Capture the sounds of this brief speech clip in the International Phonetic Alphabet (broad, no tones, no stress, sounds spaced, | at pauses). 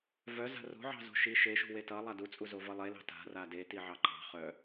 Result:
v œ z a̤ r o̤ ʕ ɑ̤ z o̤ ʃ i ʃ e ʃ ṳ w e t ʌ lˠ a d u t͡sʼ u z o v ʌ lˠ e l ɑ̤ t a̤ r a d e t i ʕ ɑ ǃ ɑ̤ χ œ